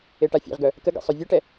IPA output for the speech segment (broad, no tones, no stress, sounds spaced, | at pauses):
e ʈ a fʲ ḛ ʁ ɡ œ | k ə ɡ ḛ sˤ œ vʲ ɛ ʈ ɛ